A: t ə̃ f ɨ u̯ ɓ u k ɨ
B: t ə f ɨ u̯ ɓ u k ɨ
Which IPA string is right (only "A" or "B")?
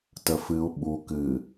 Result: B